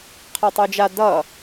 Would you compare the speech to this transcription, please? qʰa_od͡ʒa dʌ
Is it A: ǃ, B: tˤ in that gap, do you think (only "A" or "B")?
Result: B